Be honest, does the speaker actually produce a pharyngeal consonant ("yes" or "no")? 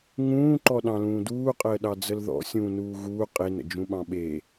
no